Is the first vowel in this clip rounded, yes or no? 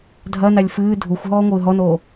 no